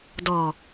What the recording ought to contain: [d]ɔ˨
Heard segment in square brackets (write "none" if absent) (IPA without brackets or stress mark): d